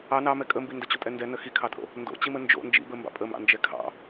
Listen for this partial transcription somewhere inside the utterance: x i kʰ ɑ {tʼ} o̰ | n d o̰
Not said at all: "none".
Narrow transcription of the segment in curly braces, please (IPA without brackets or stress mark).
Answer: tʼ